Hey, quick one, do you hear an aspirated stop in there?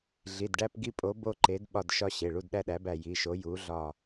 no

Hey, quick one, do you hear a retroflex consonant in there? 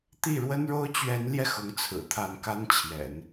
yes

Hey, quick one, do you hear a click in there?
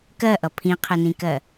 no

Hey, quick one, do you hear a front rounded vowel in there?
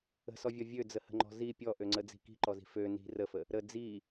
yes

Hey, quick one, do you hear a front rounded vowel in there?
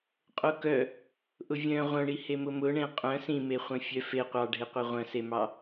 yes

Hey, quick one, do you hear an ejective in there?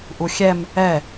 no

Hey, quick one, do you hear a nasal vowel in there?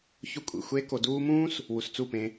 yes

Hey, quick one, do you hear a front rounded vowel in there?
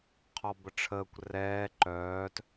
yes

